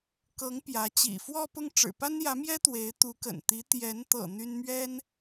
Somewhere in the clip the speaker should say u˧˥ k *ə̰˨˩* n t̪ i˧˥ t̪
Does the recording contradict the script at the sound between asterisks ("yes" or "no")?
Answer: no